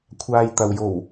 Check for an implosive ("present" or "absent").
absent